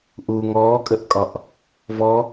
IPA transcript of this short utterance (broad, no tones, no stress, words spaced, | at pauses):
ʔu ŋɔːkʼəʔkʼɒʔ | vɔ